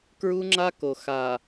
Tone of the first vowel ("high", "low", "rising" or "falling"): high